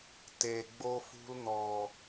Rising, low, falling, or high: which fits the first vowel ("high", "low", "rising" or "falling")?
low